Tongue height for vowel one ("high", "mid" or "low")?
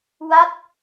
low